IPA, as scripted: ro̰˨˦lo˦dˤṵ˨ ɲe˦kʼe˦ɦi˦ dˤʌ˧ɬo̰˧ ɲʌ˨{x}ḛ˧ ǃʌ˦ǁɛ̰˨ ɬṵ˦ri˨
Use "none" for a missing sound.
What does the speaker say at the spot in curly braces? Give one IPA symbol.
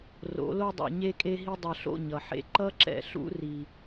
ħ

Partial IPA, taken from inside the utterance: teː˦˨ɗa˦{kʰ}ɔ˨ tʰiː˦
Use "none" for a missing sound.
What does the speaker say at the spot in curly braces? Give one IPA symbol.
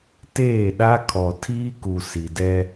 kʰ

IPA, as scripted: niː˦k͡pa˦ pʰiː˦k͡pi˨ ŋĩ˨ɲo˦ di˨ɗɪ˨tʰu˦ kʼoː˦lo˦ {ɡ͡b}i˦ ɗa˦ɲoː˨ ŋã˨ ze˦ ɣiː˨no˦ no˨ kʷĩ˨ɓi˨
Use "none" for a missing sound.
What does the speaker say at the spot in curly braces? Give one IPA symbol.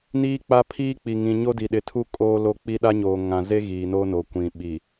k͡p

